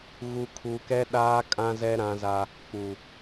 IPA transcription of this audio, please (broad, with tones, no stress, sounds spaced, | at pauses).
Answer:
ɣ u˨ kʰ u˨ k ɛ˦ ɗ aː˦ kʼ ã˦ z ɛ˦ ɾ ã˦ z a˦ | k͡p u˨